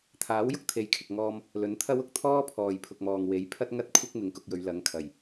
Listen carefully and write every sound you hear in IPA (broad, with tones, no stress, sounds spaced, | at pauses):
t̪ʰ aː˨˥ w j ʊ˥ k̚ t̪ʰ e˨˧ j kʰ ɪ˨ k̚ ŋ ɔː˧ m | l ɵ˨˥ n t̪ʰ ɐ˥ w ʊ˨˥ k̚ t̪ʰ ɔː˥ pʰ ɔː˨ j pʰ ʊ˨ k̚ m ɔː˨ ŋ w e˨˥ j pʰ ɐ˥ t̚ ŋ ɐ˥ t̚ kʷʰ ɪ˥ k̚ m ɪ˧ ŋ k ʊ˧ k̚ j ɵ˨˧ ɥ l ɐ˨˥ ŋ kʰ ɐ˨˩ j